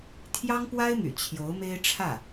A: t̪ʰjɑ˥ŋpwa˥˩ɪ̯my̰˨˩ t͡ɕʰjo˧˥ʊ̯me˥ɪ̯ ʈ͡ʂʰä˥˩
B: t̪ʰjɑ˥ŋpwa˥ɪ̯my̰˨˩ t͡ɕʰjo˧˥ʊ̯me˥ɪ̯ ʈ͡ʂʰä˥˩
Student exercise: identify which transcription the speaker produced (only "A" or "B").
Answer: B